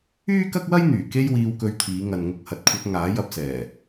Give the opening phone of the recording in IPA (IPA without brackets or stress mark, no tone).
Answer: yː